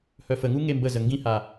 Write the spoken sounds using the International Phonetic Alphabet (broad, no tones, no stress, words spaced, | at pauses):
hœfəŋu ŋembəzə ŋɡĩha